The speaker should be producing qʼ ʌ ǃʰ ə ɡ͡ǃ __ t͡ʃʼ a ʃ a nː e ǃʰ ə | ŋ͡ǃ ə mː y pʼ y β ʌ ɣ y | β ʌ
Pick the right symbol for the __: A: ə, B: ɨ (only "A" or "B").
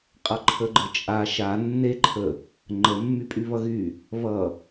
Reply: A